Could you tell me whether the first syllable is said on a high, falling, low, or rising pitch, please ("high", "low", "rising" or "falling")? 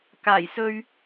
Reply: low